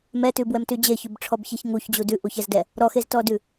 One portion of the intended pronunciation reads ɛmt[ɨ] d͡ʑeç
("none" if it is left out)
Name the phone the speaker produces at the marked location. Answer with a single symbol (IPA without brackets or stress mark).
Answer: ʉ